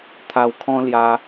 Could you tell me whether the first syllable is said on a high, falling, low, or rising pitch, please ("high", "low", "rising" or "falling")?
low